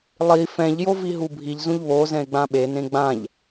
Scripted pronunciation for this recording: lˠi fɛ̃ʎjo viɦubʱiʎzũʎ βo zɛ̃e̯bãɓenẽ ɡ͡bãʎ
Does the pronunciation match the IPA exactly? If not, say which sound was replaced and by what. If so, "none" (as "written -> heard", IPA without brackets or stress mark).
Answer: b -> ɡ͡b